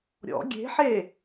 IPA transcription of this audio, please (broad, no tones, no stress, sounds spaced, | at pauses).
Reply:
ɾʲ ɔ̰ ɡʲ e̤ ħ e